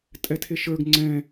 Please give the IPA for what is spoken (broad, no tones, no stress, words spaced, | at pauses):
tʼɛtʰeʃə˞ɡ ŋ͡ǀɛ̃